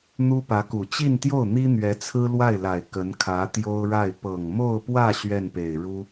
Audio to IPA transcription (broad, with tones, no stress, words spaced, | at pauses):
n̪u˥pä˧˥ku˨˩ t͡ɕi˥˧nt̪jo˥˩ʊ̯n̪i˥ n̪ɥɛ˧˥t͡sʰɹ̩˥lwa˥˩ɪ̯la˨˩ɪ̯ kə˧˥nkʰä˧˥t̪jo˥ʊ̯ɻa˥˩ɪ̯ pɤ˨˩ŋmo˥˧ʊ̯pwä˥˧ ɕɥɛ˥˩npe˨˩ɪ̯ɻu˥